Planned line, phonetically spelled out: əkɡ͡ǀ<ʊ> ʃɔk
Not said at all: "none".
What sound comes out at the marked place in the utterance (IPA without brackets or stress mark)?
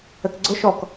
ʊ